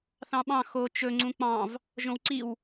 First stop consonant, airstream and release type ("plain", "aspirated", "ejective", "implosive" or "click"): implosive